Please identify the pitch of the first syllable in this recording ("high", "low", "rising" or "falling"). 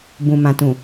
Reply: low